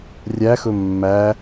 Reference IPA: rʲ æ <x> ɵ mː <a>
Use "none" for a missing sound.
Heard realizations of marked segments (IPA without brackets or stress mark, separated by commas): x, æ